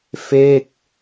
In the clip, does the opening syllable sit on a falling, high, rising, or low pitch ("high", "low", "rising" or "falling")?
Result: falling